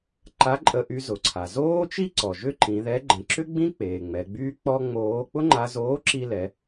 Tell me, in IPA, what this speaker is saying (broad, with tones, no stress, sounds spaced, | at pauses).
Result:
ǃ a˧˥ ǃʼ ə˧ ʔ y˧ z ʊ˩ ǀʰ a˩ z oː˥ t͡ʃ i˥ ǀ ɔ˩ ʒ ʏ˥ ǃ ĩ˩˧ ð ɛ˧˥ ɡ͡ǃ ə̃˩˧ ǁ ʏ˥ ɡ͡b ĩ˥ k͡p eː˩ ŋ͡m ɛ˩˧ ɡ͡b yː˥ k͡p ɔ˥ ŋ͡m oː˧˥ k͡p ʊ˥ ŋ͡ǃ a˧ z oː˧˥ ǁ i˧ l ɛ˩˧